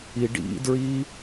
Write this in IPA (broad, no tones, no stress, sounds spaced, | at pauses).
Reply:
i ɖ ḭ d ɹ i